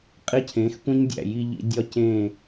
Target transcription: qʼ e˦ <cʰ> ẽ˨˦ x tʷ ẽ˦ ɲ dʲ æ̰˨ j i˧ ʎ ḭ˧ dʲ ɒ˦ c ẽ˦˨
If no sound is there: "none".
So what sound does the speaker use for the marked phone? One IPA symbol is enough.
cʰ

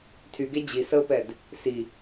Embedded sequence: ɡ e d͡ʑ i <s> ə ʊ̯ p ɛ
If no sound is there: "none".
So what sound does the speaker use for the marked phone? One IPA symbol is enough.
s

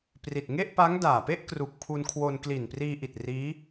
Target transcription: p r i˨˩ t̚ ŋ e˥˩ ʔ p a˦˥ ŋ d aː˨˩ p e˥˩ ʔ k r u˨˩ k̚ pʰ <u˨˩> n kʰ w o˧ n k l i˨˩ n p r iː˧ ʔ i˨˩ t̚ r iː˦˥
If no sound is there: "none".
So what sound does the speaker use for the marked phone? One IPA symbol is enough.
u˧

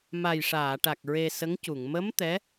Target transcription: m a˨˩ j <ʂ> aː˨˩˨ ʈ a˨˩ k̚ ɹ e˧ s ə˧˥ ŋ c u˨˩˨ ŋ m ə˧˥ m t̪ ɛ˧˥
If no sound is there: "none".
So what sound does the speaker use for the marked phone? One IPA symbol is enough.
ʂ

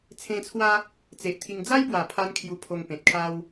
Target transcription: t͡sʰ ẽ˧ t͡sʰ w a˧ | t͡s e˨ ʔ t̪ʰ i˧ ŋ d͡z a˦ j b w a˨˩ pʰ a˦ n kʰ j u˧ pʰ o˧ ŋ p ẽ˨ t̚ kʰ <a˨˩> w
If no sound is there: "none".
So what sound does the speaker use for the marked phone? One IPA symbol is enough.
a˦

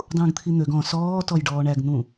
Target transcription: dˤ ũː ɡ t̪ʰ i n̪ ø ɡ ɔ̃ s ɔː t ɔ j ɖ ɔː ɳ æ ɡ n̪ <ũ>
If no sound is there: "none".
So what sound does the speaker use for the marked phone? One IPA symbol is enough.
ũ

